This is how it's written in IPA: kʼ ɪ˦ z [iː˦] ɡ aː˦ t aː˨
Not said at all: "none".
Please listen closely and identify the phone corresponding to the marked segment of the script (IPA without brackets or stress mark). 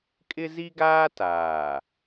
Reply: i˦